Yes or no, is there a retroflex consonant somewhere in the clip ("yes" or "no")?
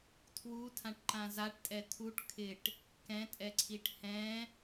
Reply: yes